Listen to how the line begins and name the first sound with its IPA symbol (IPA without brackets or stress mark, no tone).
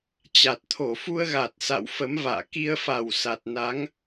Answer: t͡ɕ